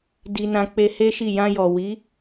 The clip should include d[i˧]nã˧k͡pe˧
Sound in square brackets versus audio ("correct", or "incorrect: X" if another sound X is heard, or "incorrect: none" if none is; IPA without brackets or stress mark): correct